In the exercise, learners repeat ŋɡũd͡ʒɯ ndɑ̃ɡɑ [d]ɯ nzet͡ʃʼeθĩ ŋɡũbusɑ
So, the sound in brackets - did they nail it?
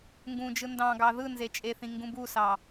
no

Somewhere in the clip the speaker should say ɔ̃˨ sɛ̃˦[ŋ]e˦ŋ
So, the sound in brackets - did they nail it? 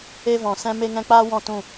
no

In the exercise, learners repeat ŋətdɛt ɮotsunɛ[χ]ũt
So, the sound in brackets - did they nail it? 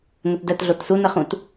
yes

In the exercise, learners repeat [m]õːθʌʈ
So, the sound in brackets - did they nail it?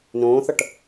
no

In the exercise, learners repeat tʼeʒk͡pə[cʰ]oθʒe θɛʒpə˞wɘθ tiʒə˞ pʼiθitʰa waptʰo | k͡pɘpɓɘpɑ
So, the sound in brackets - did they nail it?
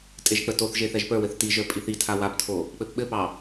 no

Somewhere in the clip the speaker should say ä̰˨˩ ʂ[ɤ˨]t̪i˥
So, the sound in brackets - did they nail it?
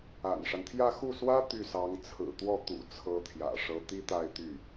no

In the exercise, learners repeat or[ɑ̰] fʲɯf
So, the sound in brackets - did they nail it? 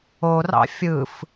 yes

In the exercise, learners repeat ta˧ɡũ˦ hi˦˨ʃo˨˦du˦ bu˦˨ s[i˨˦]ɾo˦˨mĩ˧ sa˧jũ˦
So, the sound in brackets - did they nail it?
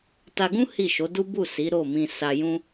yes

